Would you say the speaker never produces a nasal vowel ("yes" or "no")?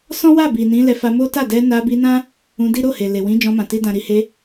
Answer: no